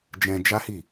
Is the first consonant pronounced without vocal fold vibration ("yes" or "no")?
no